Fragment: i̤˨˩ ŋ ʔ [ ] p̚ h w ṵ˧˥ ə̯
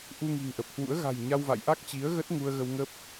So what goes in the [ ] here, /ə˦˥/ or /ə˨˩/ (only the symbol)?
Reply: ə˨˩